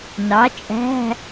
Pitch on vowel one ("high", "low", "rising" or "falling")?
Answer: rising